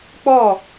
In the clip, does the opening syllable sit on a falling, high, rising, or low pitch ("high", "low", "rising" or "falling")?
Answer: falling